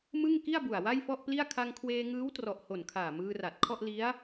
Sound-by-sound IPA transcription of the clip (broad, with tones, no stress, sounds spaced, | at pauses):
m ɯ˥˩ ŋ k i˥˩ a̯ b u˨˩ a̯ w a˥˩ j f ɔ˥˩ ʔ p l i˥˩ a̯ kʰ a˧ ŋ kʰ w eː˧ ŋ ɯː˦˥ w t r ɔ˨˩ ʔ h o˨˩ n kʰ aː˨˩ m ɯː˧ r a˨˩ t̚ kʰ ɔ˥˩ ʔ l i˦˥ a̯